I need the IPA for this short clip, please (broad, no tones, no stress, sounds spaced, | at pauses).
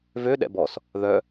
v ø ɗ ɛ̰ b ɔ s | ð œ